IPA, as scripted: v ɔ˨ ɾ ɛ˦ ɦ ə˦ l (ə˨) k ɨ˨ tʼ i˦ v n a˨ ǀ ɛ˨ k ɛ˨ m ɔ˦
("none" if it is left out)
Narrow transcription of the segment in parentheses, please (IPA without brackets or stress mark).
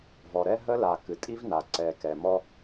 a˨